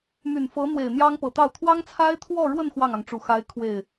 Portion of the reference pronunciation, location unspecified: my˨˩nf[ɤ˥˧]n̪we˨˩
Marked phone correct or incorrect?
incorrect: ɤ˧˥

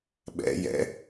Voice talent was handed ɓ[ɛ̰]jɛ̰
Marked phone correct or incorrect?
correct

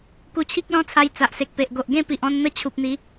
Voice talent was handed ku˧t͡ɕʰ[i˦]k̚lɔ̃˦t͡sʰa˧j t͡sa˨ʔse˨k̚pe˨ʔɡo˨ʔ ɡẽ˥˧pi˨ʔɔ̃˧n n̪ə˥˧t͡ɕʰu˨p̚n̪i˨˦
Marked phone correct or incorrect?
correct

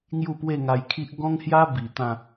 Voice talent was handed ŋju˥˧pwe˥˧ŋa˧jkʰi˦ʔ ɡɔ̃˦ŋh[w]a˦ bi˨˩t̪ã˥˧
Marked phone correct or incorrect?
incorrect: j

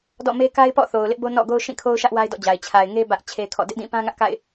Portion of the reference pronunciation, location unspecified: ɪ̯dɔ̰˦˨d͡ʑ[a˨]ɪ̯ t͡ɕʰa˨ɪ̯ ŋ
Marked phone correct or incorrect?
correct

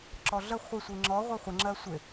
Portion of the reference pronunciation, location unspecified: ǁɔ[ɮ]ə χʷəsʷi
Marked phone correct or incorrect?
correct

